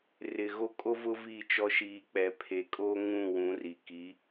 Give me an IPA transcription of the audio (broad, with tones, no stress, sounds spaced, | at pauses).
r ɪ˨ ɣ o˦ kʼ o˦ v ʊ˦ v iː˦˨ t͡ʃ ɔ˦ ʃ iː˨ k͡p ɛ˨ pʰ e˨ kʼ oː˦ ŋ ũ˦˨ w ũ˨˦ r i˨ k i˨˦